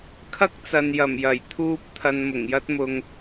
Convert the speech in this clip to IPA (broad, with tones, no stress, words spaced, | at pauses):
kʰɐ˥k̚t͡sɐ˨njɐ˨˩m jɐ˨˩jt̪ʰuː˥p̚ t̪ʰɐ˧nmʊ˨˩ŋjɐ˥t̚mʊ˧ŋ